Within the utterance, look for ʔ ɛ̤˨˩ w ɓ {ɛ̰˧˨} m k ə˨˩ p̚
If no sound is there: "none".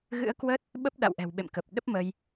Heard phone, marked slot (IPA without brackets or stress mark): ḛ˧˨